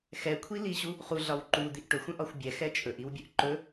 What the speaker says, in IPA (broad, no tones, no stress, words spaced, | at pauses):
xɛkʷʰiliɕu | χuɮɒw ǃud̪iʔ ʈɵxʷə̃ʔɒxʷ bʲɛxɛ t͡ʃʼɵʔiwbʲɵʔ ǃɵ